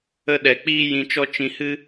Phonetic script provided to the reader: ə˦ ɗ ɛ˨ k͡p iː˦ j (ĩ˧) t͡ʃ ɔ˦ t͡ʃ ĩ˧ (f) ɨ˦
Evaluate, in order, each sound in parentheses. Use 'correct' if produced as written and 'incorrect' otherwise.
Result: correct, incorrect

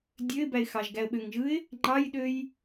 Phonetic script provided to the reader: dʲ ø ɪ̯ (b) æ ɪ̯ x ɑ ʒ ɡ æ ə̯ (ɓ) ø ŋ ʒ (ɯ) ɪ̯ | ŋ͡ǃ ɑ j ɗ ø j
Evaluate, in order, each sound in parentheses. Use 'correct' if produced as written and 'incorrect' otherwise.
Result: correct, correct, correct

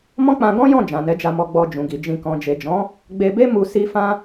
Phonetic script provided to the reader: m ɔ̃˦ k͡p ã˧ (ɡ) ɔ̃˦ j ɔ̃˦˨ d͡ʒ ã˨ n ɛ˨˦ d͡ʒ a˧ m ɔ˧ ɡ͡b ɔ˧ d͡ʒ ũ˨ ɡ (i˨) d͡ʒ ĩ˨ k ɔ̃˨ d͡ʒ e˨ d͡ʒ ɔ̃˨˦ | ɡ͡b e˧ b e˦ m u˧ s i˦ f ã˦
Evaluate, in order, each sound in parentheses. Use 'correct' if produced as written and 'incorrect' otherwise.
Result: correct, correct

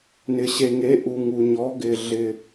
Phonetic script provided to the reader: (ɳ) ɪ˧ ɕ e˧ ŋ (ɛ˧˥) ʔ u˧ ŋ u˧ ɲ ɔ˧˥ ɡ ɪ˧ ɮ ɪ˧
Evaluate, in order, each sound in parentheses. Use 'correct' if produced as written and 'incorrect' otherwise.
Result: incorrect, incorrect

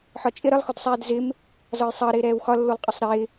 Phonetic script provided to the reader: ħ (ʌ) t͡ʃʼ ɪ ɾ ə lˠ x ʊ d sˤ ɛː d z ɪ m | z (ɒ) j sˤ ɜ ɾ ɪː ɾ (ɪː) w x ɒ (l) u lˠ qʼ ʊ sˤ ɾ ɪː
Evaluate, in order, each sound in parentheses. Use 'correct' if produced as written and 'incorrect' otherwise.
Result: incorrect, correct, incorrect, incorrect

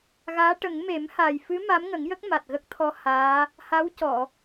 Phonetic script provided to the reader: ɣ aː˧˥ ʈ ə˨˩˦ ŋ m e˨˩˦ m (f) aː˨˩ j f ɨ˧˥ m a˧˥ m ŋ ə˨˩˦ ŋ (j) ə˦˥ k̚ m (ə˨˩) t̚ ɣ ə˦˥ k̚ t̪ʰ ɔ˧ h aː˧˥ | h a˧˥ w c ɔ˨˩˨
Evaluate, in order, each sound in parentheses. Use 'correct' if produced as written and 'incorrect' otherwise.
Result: incorrect, correct, incorrect

